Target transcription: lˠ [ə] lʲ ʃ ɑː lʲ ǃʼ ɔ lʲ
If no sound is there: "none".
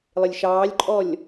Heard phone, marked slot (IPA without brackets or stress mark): ɪ